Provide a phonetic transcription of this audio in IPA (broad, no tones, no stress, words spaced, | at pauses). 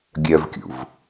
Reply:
ɡʲœvkʲṵv